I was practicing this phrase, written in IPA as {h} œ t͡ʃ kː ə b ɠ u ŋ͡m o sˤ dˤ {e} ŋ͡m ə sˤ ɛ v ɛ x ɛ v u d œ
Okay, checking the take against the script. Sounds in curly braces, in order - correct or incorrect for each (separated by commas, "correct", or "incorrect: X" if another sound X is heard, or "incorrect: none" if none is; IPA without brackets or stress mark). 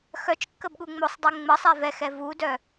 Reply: incorrect: x, incorrect: ɛ